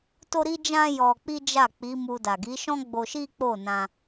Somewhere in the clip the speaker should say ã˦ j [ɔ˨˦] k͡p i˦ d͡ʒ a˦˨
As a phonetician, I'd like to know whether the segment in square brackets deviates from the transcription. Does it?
yes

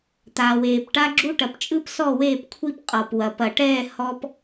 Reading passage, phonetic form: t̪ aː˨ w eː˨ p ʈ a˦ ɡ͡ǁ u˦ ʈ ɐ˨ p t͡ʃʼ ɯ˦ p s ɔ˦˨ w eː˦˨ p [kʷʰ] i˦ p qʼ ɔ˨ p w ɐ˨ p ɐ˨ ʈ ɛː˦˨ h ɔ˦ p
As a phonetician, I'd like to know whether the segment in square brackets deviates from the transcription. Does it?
no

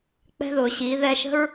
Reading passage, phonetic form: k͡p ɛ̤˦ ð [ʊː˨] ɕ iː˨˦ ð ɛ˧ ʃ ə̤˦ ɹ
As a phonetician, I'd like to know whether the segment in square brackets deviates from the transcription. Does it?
no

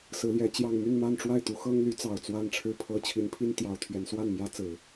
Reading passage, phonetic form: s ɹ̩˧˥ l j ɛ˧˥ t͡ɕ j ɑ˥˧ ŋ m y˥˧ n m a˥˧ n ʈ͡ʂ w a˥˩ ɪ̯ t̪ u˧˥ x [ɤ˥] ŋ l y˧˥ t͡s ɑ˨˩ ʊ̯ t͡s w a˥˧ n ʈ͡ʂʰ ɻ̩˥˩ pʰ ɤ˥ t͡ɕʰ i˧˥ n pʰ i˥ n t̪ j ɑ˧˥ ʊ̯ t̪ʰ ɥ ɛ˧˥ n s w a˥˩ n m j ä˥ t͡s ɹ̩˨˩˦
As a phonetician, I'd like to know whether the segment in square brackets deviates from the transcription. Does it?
no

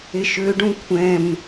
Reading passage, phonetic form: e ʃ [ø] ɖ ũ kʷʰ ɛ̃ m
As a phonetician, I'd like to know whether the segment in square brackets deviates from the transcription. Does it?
no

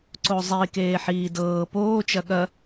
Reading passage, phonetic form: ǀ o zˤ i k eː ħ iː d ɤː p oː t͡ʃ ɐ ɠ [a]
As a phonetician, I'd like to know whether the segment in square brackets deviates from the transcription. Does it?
yes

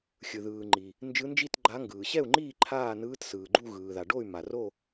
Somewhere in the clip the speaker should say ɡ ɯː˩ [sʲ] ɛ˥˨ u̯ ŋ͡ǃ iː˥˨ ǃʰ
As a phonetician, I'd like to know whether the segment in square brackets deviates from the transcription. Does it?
yes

